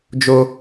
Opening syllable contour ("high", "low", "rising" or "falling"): high